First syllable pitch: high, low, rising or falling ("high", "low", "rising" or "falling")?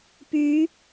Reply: rising